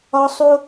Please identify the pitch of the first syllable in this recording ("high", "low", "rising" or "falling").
high